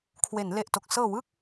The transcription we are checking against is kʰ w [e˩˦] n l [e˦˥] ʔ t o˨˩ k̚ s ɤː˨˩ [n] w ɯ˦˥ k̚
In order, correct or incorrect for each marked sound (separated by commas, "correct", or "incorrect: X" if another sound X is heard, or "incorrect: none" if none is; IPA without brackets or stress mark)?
correct, incorrect: e˨˩, incorrect: none